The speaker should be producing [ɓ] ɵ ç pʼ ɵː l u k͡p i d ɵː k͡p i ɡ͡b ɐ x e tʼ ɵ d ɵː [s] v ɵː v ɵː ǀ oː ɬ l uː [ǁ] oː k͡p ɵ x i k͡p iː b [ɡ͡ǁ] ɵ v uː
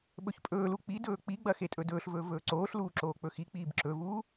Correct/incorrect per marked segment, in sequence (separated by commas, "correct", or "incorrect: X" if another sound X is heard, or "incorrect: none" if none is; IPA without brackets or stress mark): correct, incorrect: ɬ, correct, incorrect: ǁ